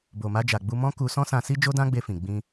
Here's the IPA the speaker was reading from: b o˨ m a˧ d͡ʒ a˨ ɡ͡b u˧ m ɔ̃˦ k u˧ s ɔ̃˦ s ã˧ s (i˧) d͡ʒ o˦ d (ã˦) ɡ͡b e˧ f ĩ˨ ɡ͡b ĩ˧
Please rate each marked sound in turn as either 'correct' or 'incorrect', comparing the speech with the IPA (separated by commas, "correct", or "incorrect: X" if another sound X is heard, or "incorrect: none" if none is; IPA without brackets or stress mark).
incorrect: i˦, correct